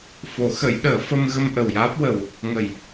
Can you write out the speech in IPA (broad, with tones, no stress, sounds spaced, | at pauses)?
f o˨˩˦ x ə˨˩˦ j ɗ əː˨˩˦ f ə˧ m ɣ ə˧ m ʔ ə˨˩ w j aː˦˥ p̚ w ə˨˩ w | ŋ ə˨˩˨ j